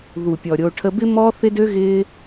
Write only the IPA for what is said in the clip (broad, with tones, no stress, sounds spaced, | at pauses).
ð u˨ pʲ ɔ˨ ɾʲ o˧ ʈʰ ə˧ b ɪ˦ m ɔ˦ θ ɪ˦ d ø˦ ɣ ɪː˦